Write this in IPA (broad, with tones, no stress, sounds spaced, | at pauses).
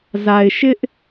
z a˨ ɪ̯ ʃ ɪ˦ ʔ